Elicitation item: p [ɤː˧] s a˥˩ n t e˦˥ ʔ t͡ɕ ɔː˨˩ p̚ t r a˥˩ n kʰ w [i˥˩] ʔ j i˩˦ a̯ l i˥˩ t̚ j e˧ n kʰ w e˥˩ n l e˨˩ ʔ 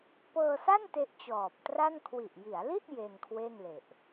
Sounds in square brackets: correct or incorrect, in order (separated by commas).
correct, incorrect